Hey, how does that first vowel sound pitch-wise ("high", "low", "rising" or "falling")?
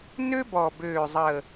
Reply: high